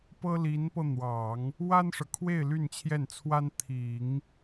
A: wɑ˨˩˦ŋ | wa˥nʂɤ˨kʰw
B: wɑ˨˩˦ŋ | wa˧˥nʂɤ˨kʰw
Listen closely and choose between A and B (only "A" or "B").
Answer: A